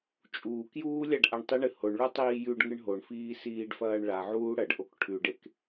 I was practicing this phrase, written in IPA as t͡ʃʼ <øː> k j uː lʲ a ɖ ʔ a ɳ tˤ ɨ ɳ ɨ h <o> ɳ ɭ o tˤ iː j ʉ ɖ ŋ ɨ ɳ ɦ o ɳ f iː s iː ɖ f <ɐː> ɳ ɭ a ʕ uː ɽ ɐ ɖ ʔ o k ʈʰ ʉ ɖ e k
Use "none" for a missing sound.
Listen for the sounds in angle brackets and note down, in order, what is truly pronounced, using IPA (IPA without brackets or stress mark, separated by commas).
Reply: uː, o, ɐː